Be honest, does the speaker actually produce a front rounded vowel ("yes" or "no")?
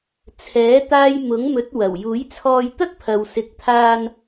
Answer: no